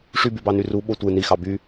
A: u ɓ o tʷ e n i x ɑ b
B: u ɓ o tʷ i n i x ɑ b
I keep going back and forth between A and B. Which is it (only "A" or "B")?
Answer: A